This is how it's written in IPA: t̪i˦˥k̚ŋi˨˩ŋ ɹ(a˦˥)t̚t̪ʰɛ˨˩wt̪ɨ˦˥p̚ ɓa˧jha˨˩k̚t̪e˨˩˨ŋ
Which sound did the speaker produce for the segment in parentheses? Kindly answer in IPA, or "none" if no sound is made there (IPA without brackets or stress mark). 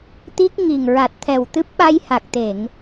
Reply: a˨˩